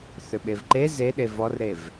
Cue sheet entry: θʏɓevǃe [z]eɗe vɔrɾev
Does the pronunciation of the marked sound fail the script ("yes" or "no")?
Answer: no